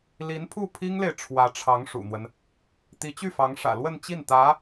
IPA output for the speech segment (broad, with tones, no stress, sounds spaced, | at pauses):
l i˧˥ n pʰ u˥˩ pʰ i˥ ŋ l e˨ ɪ̯ ʈ͡ʂʰ w ä˧˥ ʈ͡ʂʰ ɑ˧˥ ŋ ʂ ṵ˨˩ n̪ w ə˦ n | t̪ i˧˥ t͡ɕ y˥˩ f ɑ˧˥ ŋ ʂ ä̰˨˩ l w ə˥˧ n t͡ɕ i˥˩ n t̪ ä˧˥